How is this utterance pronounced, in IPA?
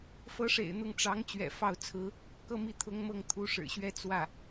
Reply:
fɤ˧˥ʂḛ˨˩ɪ̯ n̪ʊ˥˩ŋ ʈ͡ʂɑ˧˥ŋ t͡ɕɥɛ̰˨˩ fɑ˥˩ʊ̯t͡sʰɹ̩˥ | kɤ˥˧mi˥˩ t̪ʰʊ˥ŋmɤ˥˩ŋ t̪ʰu˧˥ʂɻ̩˨˩ɕɥɛ˥˧ t͡swä˥˩

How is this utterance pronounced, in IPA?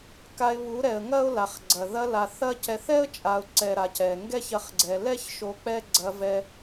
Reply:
ka˧ɪ̯βu˨˦ɾɛ˨ə̯ ŋɐ˦ʊ̯la˨χɡ͡ǀɐ˨ ðɐ˧la˨θ ɐ˦cɛ˧θ ɛ˦ə̯t͡ʃʼa˨ʊ̯ ǀɛ˨ ɾa˨cɛ˨ ŋɡɛ˦çɐ˧χɡ͡ǀɛ˨ lɛ˦ç ʃo˧k͡pɛ˦ ɡ͡ǀɐ˧vɛ˧

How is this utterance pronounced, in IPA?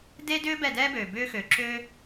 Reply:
de˦ dʏː˦ bɛ˦˨dɛː˦bøː˨ bʏː˦xø˨ ǁøː˦

